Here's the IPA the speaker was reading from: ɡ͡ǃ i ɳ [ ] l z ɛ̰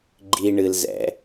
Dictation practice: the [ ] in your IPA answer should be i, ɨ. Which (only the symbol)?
ɨ